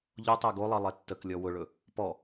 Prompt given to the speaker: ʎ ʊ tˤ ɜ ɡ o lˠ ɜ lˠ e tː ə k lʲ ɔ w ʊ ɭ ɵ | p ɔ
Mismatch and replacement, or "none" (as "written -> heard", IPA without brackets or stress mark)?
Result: none